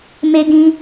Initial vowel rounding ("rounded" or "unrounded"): unrounded